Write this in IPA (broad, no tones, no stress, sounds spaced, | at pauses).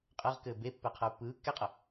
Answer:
qʼ ɘː ʁ k ɘː b e pː ɛ qʰ ə u̯ pː ɯː kː ɛ qʼ ə